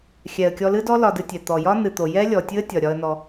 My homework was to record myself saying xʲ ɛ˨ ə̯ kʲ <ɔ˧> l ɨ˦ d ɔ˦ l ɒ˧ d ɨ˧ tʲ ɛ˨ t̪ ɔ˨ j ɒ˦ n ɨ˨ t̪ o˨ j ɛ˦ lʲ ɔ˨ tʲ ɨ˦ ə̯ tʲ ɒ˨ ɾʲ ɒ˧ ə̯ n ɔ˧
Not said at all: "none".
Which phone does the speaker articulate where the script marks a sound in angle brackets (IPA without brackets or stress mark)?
ɔ˧